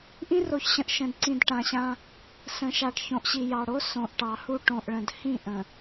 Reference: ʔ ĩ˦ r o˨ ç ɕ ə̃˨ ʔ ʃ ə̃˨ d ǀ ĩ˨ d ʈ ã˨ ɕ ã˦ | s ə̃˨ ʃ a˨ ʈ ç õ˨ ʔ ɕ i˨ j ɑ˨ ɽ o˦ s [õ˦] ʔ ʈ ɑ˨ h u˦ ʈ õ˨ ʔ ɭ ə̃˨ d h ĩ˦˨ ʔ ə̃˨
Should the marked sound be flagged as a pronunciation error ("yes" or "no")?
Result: yes